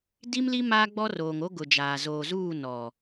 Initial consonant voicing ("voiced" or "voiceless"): voiced